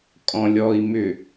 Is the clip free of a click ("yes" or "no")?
yes